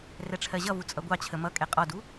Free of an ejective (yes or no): no